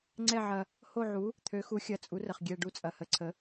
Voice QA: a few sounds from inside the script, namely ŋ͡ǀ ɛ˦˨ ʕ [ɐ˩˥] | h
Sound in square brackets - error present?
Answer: yes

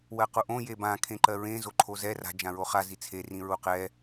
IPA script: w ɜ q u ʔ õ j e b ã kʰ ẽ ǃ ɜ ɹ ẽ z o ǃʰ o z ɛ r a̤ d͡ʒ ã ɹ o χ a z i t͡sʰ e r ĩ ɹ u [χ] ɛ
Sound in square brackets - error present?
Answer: yes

